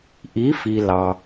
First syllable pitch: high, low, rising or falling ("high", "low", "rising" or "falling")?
rising